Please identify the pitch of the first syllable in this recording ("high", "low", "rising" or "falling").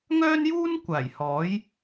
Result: high